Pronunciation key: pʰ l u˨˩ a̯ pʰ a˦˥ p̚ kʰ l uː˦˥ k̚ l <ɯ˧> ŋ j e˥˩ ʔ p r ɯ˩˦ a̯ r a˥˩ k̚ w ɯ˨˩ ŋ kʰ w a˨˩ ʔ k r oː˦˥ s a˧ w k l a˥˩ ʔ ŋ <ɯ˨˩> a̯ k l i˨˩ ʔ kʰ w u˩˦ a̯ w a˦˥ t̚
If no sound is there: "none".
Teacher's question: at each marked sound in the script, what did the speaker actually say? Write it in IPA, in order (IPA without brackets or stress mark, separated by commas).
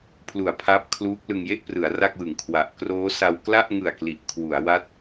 ɯ˧, ɯ˨˩